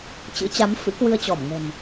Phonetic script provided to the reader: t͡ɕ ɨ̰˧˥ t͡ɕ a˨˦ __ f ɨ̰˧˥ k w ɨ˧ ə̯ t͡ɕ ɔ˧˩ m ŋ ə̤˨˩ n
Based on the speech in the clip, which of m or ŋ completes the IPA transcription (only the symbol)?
m